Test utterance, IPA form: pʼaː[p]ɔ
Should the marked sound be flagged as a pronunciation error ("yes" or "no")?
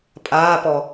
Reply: no